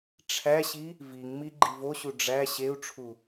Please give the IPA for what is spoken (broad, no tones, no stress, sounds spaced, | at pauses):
ʈ͡ʂʰ æ ɕ i | v i ŋ m i ɡ͡ǃ i v o ɕ u ɖ͡ʐ æ ɕ e u̯ ʈ͡ʂʰ u